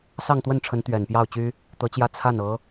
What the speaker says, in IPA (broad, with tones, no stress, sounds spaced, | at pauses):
s ɑ˥˧ ŋ t̪ w ə˥˩ n ʈ͡ʂʰ ə˧˥ n t̪ ɥ ɛ˨˩ n p j ɑ˥˩ ʊ̯ t͡ɕ y˥ | t̪ ɤ˧˥ t͡ɕ j ä˥˧ t͡sʰ a˥˩ n ɤ˧˥